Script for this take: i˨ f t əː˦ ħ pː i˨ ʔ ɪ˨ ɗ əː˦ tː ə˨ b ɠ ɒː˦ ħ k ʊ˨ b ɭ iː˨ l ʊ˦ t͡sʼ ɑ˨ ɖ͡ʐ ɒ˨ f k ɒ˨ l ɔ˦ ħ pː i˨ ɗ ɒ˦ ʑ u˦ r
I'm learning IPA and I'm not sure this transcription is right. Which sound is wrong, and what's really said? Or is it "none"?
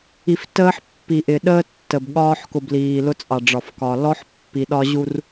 ɭ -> l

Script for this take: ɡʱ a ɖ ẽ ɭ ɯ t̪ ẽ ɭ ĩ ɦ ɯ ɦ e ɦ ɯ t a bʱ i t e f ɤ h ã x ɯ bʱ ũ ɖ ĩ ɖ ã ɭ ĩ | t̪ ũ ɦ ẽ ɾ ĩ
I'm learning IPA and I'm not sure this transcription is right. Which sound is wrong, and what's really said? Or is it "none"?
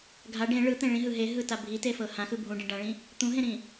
none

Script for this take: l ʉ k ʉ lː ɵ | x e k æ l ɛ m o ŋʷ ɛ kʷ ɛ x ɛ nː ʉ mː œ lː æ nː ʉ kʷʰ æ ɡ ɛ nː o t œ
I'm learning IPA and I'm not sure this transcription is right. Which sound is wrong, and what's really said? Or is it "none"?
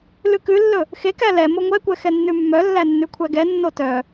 none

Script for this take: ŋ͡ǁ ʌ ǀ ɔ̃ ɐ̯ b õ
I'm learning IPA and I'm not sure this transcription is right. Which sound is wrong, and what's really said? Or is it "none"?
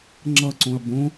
ɔ̃ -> õ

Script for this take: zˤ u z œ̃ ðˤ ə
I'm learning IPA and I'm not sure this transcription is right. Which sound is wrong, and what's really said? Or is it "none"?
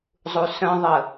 z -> s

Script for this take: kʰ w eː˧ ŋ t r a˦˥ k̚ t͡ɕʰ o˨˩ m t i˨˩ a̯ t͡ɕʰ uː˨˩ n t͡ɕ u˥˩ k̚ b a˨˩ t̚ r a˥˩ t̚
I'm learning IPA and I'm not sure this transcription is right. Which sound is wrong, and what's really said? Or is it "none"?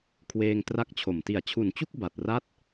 uː˨˩ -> u˨˩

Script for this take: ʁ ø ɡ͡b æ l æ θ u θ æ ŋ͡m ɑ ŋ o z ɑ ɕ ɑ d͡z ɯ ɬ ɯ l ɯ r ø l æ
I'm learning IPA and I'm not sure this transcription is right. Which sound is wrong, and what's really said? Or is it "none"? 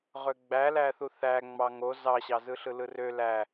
d͡z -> z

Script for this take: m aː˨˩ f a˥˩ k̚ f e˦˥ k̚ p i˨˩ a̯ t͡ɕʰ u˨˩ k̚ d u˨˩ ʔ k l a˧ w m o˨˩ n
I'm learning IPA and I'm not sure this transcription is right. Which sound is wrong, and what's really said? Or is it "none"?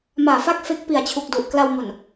none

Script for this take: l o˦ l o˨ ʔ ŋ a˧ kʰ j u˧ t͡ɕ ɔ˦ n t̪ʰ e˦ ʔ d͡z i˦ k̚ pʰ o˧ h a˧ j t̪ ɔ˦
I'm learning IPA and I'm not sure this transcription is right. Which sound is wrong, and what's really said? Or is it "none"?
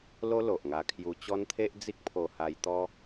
none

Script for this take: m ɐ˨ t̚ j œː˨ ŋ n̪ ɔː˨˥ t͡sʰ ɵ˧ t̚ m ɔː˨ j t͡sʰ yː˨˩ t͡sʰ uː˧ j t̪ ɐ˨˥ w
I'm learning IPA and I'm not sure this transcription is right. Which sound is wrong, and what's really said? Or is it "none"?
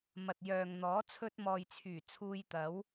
none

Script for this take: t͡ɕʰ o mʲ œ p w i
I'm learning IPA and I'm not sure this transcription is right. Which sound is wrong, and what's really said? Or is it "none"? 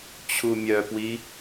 o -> u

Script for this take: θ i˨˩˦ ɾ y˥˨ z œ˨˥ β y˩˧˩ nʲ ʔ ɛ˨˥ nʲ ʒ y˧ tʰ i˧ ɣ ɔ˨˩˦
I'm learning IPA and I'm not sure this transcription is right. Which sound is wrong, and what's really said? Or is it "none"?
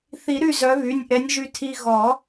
none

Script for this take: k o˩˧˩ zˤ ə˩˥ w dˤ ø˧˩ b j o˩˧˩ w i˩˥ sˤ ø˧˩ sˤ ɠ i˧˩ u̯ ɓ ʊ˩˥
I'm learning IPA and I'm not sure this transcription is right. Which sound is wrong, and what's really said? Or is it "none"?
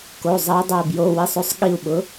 none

